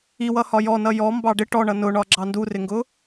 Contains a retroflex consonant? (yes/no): yes